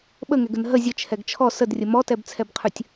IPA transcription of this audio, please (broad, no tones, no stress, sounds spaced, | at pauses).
ɓ ə ŋ ɛ ɡ ə n ɦ ə zʲ ə t͡ʃʰ ɛ ɡ t͡ʃʰ ɔ s ə d rʲ ə m ɔ t ɛ b t͡sʰ ɛ b qʰ ʉ tʲ